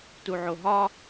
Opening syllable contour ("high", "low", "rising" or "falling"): low